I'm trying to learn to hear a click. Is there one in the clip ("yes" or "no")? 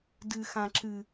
yes